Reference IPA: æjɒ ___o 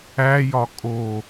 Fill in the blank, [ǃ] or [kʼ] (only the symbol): kʼ